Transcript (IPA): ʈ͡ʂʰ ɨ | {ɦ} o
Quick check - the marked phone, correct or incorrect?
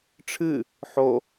incorrect